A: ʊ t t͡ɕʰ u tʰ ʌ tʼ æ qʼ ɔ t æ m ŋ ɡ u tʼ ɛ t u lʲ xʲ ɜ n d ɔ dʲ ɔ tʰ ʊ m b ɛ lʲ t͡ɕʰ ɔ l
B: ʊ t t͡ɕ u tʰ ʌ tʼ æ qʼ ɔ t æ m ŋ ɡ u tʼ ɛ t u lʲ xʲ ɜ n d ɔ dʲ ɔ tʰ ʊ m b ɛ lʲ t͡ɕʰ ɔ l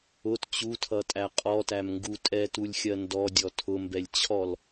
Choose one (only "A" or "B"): B